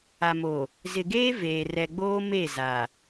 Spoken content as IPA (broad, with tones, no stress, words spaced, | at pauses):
a˨mo˨ | zɪ˨ɡeː˦ veː˨ rɛ˨ ɡ͡boː˦me˦˨ za˨